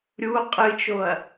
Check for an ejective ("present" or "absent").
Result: present